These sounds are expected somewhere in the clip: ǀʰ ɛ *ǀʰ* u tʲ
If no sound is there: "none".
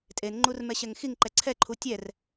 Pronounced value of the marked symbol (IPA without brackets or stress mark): ǃʰ